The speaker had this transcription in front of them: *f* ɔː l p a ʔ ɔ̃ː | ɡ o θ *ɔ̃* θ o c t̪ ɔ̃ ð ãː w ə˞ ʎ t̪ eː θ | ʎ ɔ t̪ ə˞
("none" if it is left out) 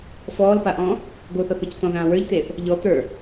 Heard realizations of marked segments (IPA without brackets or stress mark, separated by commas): f, ɔ